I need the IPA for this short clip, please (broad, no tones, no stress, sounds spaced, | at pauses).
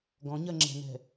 ɡ ɔ̃ ɲ ɜ ŋ͡ǁ ɛ̤ n ɛ̤